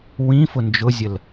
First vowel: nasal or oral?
nasal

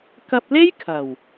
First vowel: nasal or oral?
oral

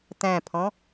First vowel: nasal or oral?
nasal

